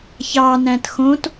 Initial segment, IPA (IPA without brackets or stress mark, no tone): ç